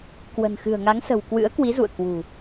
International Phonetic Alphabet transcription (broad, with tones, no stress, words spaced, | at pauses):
kwə̤˨˩nxɨ̤˨˩ə̯ŋa˨˦ŋsə̤˨˩w kwɨ̰˧˥ə̯kwi˨˦zṵ˧˨ə̯ kwṳ˨˩